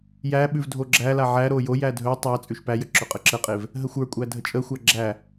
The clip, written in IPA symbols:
j æ ɓ ʉ v dʱ o ɡ͡ǁ æ l a ʕ æ ɾ o j o j æ dʱ ɵ tˤ æ t͡sʼ ʉ ʃ p æ j ə ǁ ɵ qʼ ə ǁ ə qʼ e v | ɦ ə xʷ ə˞ kʷʼ æ dʱ ə t͡ʃʼ ə xʷ æ ɡ͡ǁ æ

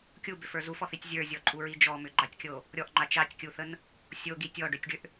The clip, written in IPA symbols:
kʲ u b ʏ f ə˞ z u f ɔ θ i tʲ zʲ ə˞ zʲ ɔ ǃʼ u ɹ i d͡ʒ ɔ m ʏ ɡ͡ǃ a tʲ kʲ o | ɾʲ ɔ ʔ ŋ͡ǃ a t͡ʃ a tʲ kʲ u θ ə n | sʲ o ɡ i tʲ ɔ ɖ ʏ tʲ ɖ ʏ ʔ

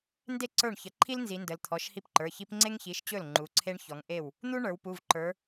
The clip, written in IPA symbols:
n d e˥˩ ǀ ə˞˥˩ ɳ ç ə˩˧ ǃʰ i˥ l n z i˩˧ n d ə˩˧ l t̪ʰ ɔ˩˧˩ ʃ h i˥˩ p ǃ ə˞˩˧˩ ç i˥ p ŋ͡ǀ e˥ ŋ ç i˩˧˩ ʃ t͡ɕ ɵ˥˩ l ŋ͡ǃ u˩˧ ǀʰ e˥ ɳ ç ɔ˩˧ ŋ ʔ e˥˩ w | n̪ u˥ ɳ ə˞˩˧ w p u˩˧˩ v ǃ ə˞˩˧

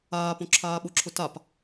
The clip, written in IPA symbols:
aː p õ ǁʰ aː ɓ ʊ ǁʰ ʊ t a p

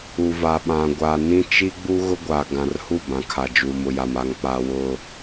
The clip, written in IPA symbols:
u˨ v a˨ ɓ ã˨ ɡʷ a˨ n ĩ˦ t͡ʃ i˦ ɡ͡b u˦ ɣ ʊ˦ ɡʷ a˨ ɡ ã˨ r h u˦˨ b ã˨ kʰ a˨ d͡ʒ uː˨ m ʊ˨ j a˨ m a˨ ŋ k͡p a˨ w ʊ˨

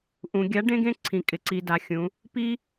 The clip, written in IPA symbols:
ʔ ũ˩˧ ɡʲ a˨˥ ɖ ẽ˥ ɡ ẽ˥ ǀʰ ĩ˩˧ kʼ ɪ˩˧ ǀ i˩˧ d a˩˧ xʲ ũ˩˧ | p i˥

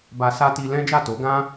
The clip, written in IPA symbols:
b a˧ s a˦ t i˧ l ɛ̃˦ d͡ʒ a˦˨ t o˨˦ ɡ ã˦

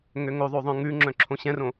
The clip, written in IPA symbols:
ŋ ø ŋ o ðˤ o ðˤ œ̃ ŋ ʉ ŋ͡ǁ œ̃ ǁʰ õ ɕ ɛ̃ r õ

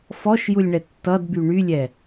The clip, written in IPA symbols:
f ɔ ʃ j u lʲ ɳ ɛ tː ʌ d b y ɳ y lʲ ɛ

